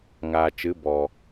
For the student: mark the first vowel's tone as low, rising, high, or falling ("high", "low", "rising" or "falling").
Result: low